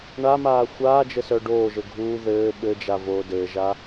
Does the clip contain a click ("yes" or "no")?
no